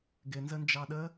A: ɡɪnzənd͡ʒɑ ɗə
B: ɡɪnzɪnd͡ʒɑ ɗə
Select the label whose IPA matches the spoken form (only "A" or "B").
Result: A